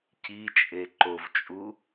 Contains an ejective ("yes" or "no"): yes